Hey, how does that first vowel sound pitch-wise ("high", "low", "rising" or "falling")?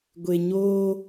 low